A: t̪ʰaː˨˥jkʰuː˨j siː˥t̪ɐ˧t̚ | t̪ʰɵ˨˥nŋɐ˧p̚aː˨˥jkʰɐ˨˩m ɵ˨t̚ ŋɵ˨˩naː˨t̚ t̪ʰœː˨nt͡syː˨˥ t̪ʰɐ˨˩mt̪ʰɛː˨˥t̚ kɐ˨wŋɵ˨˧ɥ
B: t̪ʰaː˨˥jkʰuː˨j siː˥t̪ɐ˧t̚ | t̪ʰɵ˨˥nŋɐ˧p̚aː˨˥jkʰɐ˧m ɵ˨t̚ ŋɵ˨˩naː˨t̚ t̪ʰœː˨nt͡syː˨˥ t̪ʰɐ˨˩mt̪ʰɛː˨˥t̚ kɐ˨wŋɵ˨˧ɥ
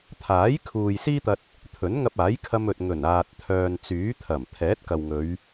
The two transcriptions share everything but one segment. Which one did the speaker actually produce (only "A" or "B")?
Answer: B